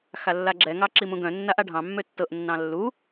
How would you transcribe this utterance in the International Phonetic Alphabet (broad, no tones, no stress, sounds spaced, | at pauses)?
x a lː a ɡ͡ǁ ɛ ŋ ɑ ǁ i m ũ ɡ œ̃ nː a ʔ a ɖʱ ɑ̃ mː ø tː ɤ ʔ nː ɑ̃ lː u